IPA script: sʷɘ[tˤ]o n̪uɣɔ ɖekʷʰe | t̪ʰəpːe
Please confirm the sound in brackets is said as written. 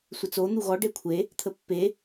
no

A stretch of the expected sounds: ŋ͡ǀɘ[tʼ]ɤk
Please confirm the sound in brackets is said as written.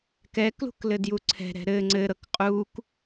no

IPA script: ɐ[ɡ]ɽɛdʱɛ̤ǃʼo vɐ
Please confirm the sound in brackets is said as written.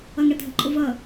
no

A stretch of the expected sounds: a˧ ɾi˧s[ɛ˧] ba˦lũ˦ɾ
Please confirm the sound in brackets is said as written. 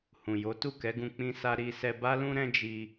yes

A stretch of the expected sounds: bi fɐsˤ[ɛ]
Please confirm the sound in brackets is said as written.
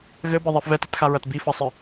no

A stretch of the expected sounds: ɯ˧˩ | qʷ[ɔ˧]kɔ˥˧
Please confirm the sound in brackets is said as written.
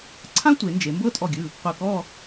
no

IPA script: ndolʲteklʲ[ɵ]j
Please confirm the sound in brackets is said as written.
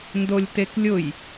no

